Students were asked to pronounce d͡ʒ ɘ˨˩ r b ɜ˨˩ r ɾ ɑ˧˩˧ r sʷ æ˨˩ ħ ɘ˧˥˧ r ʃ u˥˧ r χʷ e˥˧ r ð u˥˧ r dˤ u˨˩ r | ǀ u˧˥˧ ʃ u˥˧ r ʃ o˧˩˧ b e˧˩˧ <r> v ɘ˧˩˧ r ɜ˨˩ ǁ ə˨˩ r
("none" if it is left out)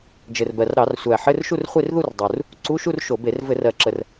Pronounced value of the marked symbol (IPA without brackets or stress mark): r